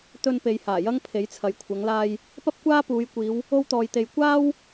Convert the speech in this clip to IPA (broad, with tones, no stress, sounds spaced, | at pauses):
t̪ ɵ˧ n p e˨ j h aː˨˩ j ɐ˥ ŋ pʰ e˨˥ j t͡sʰ ɐ˨˧ j kʷʰ ɐ˨˧ ŋ l aː˧ j | p ɐ˥ p̚ kʷ aː˥ p uː˨˧ j kʷ iː˨˧ w | o˥ w t̪ ɔː˧ j t̪ e˧ j kʷ aː˥ w